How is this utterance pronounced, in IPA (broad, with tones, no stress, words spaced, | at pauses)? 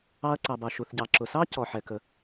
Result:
ɑ˧ɐ̯ǀɑ˩bɑ˩ ʃu˩θɟɑ˩ǁʊ˩sɑ˥ cɔ˩ħɛ˩kə˩